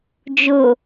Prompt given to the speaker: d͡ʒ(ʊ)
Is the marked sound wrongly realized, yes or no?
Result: no